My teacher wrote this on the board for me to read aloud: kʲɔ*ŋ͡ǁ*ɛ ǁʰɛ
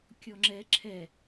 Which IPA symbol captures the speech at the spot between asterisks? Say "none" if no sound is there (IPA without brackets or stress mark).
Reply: ŋ͡ǁ